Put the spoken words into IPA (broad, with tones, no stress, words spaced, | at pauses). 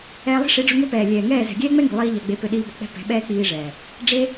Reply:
ɛː˧lˠi̤˦ʂi˨˦ɖ͡ʐʊ˧ ŋø˦pɛː˨ lʲɛː˨ŋɛː˦˨ zɛ̤˨ɡʲɛː˦ŋ͡mɛ˦ŋi̤˨ lˠiː˦ʎa˧ɡ͡be˧ pø˧ɗiː˧ bɔ˨k͡pɛ̤˦ pɛ̤˨˦ɓɛː˦k͡piː˧ʐɛː˨ | ɖ͡ʐe˦